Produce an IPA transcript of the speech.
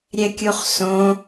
ɾʲ ɛ kʲ u χ s õ

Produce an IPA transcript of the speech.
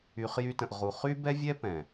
y˨ χ j y˧ t ə̃˨ ʔ ʁ u˨ χ y˦ b ɛ˦ vʲ ɛ˦ p ɛ̃˨

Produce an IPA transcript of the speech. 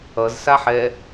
ʌ z s a ħ ɛ

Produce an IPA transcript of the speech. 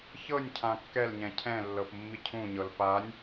ç ɤ nʲ cʰ ã kː ɛ l ɲ ɛ̃ cʰ ɛ̃ lː ɤ p mː i cʰ ũ ɲ ɤ l p a nʲ

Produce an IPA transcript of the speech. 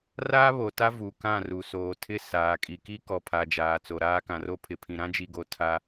r aː˦ β o˨ t a˦ v u˨ k ã˦˨ r u˨ s oː˨ tʰ ɪ˦ s aː˨ kʼ i˨ k i˦ k ɔ˨ pʰ a˨ d͡ʒ aː˨ t͡s o˨ ɾ aː˦ k ã˨ r o˦ pʰ ɪ˨ pʰ ĩ˨ ɾ ã˦ d͡ʒ i˨ ɡ o˨ tʰ a˦

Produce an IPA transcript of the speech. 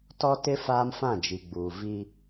t ɔ˦ t ɪ˦ f aː˦ m f ã˦˨ d͡ʒ i˨ ɡ͡b uː˨ v i˦

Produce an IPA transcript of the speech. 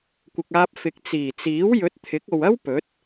kʷ ɪ˨ k̚ aː˧ p̚ f ɪ˨ k̚ t͡s iː˨˩ t͡s iː˨˥ w j ɵ˨˥ t̚ t̪ʰ ɪ˨˥ k̚ o˨ w ɐ˥ w p ɵ˨˥ t̚

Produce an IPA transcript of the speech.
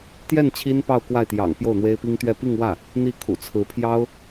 t̪ j ɛ˥˩ n t͡ɕʰ i˥ n p ɑ˥˧ ʊ̯ k w a˥˩ ɪ̯ t̪ j ɑ̰˨˩ ŋ p j o˥˩ ʊ̯ n̪ w e˥ ɪ̯ p i˥ ŋ t̪ ɥ ɛ˥˧ p i˥˧ ŋ w ä˥˩ | n̪ i˥˩ kʰ ṵ˨˩ t͡sʰ ɹ̩˧˥ pʰ j ɑ˥ ʊ̯

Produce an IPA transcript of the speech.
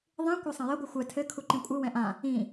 ðˤ ĩ kʷ a sˤ ɐ̃ j ɘ ɡʷ ɨ xʷ ɛ tʰ ɘ kʰ u ǃ ĩ kʷʼ ɨ w ɛ̃ ʔ ã | ĩ

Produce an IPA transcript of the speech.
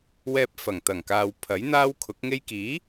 w ɛː˧ p̚ f ɐ˨˩ ŋ t̪ ɐ˨˩ ŋ k aː˨ w pʰ ɐ˨˥ j n̪ aː˥ w kʰ ʊ˨˥ k̚ ŋ e˥ j k iː˨˥

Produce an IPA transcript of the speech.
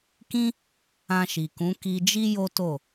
k ĩ˦ | ã˧ ʃ i˨ k ũ˨˦ k i˧ d͡ʒ i˦ j o˦ t o˦˨

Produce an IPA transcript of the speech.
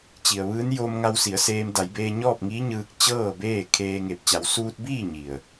t͡ɕ i˩ ə̯ ʋ ɯː˧˥ n j o˧ m ŋ a˧ w s i˩˧ ə̯ s eː˧ m d a˩˧ j b eː˧ ɲ ɔː˥˨ p̚ ŋ iː˧˥ ɲ ɯː˧ k̚ t͡ɕ ɤː˥˨ b eː˥˨ kʰ eː˧ ŋ e˧˩ p̚ t͡ɕ a˩˧ w s uː˧ t̚ b iː˥˨ ɲ i˧˩ ə̯

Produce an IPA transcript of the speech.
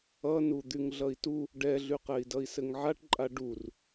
ʌ n u d̪ y ŋ ɮ ʌ i̯ t u | ɖ ɛ ɮ y q ɛ i̯ d ʌ i̯ s ɘ ŋ ʕ a ʈ ǃʼ a ɖ u r

